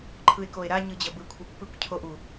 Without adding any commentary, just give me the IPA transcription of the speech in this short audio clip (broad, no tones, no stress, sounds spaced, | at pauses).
ǃʰ ɯ e̯ k o e̯ ɾ a ɲ ɯ d͡ʑ ʌ b ɯ kʷʰ i pː ɯ kʷ cʰ o ʔ u